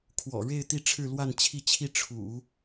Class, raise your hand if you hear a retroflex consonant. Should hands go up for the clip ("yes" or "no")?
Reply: yes